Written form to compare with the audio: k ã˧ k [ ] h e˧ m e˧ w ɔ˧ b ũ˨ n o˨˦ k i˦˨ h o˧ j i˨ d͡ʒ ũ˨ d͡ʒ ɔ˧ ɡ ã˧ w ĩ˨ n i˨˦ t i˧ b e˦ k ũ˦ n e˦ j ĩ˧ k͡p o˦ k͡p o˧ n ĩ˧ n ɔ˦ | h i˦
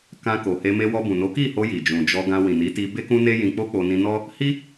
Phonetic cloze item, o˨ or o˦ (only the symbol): o˨